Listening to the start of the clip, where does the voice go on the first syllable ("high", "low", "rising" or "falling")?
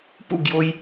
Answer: falling